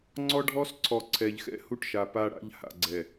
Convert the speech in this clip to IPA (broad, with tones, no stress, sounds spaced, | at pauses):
ŋ͡ǀ ɔ˦ ɖʱ ɔ˦ s ǀʰ ɔ˨ ǀʰ ɛ˨ ʎ x ɛ̰˦ h u˦ ʈ ʃ a˨ p a˦ ɽ a̰˦ ʎ h a̰˨ ɡ͡ǀ ɛ˨